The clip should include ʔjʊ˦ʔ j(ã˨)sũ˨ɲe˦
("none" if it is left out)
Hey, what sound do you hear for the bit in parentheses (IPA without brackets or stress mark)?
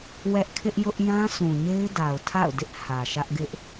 ã˦